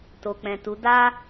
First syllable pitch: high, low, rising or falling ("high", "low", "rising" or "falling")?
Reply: low